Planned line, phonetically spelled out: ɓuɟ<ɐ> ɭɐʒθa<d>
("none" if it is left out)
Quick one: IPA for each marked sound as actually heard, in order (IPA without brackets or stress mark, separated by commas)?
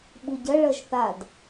ɐ, d